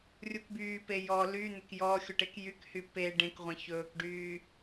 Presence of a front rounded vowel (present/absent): present